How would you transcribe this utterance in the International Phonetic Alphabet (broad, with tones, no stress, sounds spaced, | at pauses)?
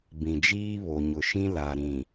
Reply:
b ĩ˨ d͡ʒ iː˦ β o˨ ɲ ʊ˨ ʃ ĩ˦ l a˨ ɾ ĩ˨